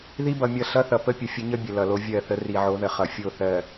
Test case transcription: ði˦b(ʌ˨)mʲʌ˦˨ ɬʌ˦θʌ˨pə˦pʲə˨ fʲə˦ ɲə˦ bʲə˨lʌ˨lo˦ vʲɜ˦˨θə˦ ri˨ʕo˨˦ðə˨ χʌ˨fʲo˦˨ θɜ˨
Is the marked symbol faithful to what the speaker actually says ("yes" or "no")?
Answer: yes